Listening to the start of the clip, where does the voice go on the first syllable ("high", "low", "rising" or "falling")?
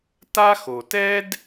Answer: high